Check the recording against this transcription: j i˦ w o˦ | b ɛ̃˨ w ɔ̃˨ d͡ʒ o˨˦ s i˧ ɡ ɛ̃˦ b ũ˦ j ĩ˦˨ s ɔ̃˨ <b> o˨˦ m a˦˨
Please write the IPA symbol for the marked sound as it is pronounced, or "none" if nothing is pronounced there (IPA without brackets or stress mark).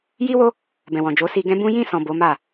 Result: b